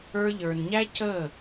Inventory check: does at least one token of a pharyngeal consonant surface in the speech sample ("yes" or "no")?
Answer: no